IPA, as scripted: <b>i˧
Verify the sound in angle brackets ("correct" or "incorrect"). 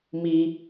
incorrect